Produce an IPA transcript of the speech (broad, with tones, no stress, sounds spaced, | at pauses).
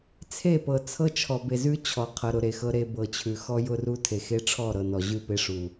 t͡sʰ e˦˨ p ɤ˨ t͡sʰ ɤ˦ t͡ʃʰ ɔ˨ b e˨ z ʉ˦ t͡ɕʰ ɔ˨ qʰ ɤ˨ ɾ ʊ˨ ɾ e˨ x ɤ˦ ɾ e˦ b ɤ˨ t͡ɕʰ ʉ˨ x ɔ˦ j ʊ˦ r u˦ tʰ e˨ x e˦ ʈ͡ʂʰ ɔ˦˨ ɾ ɤ˨ n ɔ˨ ʑ ʉ˦˨ p e˦ ʂ u˨